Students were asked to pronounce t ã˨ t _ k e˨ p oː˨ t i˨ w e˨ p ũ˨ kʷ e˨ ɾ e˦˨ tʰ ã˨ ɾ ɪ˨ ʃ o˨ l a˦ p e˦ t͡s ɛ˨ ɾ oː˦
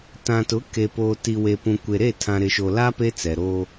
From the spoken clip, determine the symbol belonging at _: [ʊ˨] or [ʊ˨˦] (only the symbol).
ʊ˨˦